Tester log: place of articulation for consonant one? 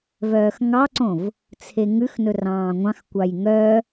labial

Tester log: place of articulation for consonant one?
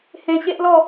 glottal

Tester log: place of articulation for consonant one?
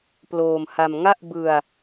labial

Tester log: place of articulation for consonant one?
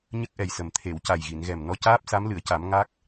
palatal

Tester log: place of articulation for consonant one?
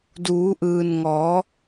alveolar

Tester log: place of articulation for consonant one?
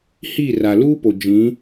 glottal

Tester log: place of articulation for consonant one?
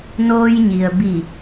alveolar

